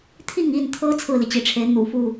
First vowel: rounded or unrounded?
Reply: unrounded